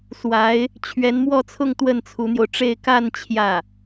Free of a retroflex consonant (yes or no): no